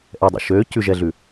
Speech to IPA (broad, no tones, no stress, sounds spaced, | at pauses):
ʔ ɛ dˤ ḭ ʃ ø c ʉ ʒ ɛ ɮ ʉ